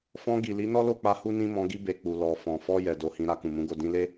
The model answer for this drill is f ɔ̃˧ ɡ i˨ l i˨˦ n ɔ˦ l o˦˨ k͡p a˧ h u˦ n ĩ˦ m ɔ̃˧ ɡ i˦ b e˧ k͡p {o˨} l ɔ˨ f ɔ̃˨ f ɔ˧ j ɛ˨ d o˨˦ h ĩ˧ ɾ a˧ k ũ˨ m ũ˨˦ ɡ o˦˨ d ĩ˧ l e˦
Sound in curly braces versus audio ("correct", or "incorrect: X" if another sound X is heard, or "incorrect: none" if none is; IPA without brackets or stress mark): incorrect: u˨